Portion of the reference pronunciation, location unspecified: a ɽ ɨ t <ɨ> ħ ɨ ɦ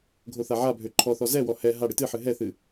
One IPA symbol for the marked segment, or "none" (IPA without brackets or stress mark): ɨ